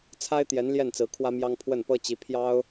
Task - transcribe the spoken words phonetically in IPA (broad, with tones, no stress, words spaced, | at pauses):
t͡sʰa˥ɪ̯t̪jɛ˧˥n ljɛ˥˩nt͡sɹ̩˧˥ kʰwä˥mjɑ˥ŋ pʰwə˥˩npɤ˥ t͡ɕi˧˥ pʰjɑ˥ʊ̯